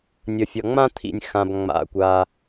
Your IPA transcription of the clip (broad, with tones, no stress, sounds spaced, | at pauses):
nʲ ə˩ fʲ ʌ˩ ŋ͡m ã˥ t̪ʰ ḭ˩ nʲ x ã˩ b ŋ͡m a̰˩ kʷ a˩